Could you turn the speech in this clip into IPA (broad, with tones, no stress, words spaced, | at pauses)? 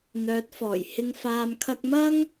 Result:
n̪œː˨˥t̚fɔː˨˩jhɪ˧ŋ faː˨mkʰɐ˧k̚mɐ˥ŋ